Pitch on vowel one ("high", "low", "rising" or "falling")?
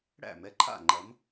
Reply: falling